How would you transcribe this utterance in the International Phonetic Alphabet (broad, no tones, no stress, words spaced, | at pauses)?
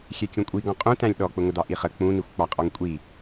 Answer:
xʲɛkʲũkʷʼiɡɔ̃ qʼũtæ̃lʲ ɗɔk͡pʊŋəd̪ɑ ʔiχə k͡pũnixʷ k͡pɑqʼɔŋkʷʼi